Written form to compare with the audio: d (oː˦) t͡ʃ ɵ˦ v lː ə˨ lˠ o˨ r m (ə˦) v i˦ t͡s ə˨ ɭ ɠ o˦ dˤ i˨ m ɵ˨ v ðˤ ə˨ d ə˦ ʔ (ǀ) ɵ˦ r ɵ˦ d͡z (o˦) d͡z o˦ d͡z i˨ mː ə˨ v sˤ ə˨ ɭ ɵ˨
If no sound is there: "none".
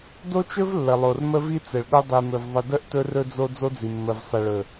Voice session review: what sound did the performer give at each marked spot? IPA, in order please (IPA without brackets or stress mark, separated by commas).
o˦, ə˦, t, o˦